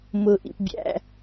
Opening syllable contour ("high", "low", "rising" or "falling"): low